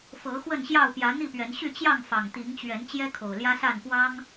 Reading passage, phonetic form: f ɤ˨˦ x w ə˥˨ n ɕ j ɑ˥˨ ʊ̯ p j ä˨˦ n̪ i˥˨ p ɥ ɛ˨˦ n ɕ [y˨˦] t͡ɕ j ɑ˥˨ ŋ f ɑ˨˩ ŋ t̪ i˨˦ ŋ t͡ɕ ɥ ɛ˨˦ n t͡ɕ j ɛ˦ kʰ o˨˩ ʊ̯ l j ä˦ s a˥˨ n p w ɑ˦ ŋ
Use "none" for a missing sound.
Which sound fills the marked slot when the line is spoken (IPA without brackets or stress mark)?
y˥˨